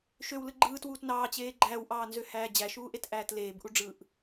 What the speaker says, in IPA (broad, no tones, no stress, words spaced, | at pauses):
ʃøwlɯ ɡ͡ǃɯːtwuːt nɑːt͡ɕeː ɡ͡ǃæːwʔɑːnzøhæː d͡ʑæʃuːʔetʔæːt leːbʔuɖ͡ʐɯːʔ